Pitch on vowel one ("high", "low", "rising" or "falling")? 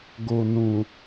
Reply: low